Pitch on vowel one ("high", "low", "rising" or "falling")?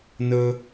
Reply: high